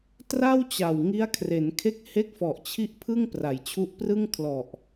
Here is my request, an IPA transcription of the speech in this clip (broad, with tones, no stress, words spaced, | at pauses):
tra˥˩wt͡ɕa˨˩wŋi˦˥a̯kʰre˩˦n kʰe˦˥k̚he˦˥k̚fɔ˨˩ʔt͡ɕʰi˦˥ʔ pʰɯ˥˩ŋpra˩˦jt͡ɕʰu˦˥ʔprɯ˥˩ŋ kʰlɔ˨˩ʔ